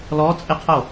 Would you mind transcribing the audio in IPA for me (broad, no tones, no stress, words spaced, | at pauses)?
lɔ t͡sʼɪqʰo